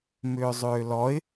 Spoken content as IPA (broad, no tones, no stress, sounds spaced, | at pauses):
m ʏː zˤ ʏː l ɔ ɪ̯